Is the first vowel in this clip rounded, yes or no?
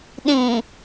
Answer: no